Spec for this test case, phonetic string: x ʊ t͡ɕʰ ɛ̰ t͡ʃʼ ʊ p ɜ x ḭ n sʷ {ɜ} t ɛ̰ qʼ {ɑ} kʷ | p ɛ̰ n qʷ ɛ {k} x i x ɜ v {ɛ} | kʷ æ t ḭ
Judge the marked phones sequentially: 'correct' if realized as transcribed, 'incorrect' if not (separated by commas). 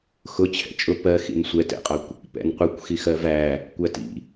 incorrect, correct, incorrect, incorrect